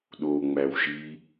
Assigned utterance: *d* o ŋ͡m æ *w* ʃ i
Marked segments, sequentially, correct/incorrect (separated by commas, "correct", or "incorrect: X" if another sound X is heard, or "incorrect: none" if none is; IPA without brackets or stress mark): incorrect: ɗ, correct